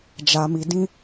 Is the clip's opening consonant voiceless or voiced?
voiced